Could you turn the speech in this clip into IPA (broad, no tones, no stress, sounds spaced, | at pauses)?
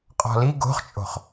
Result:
qʼ ɔ̤ l i ɡ o̤ χ t͡ʃʼ o̤ χ